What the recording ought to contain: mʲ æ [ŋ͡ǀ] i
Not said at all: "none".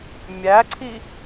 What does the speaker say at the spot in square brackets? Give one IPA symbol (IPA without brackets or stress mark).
ǀʰ